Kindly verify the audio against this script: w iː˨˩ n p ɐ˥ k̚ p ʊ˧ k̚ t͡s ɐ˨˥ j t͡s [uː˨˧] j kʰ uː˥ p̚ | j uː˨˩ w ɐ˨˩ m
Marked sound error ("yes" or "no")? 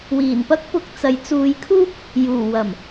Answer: no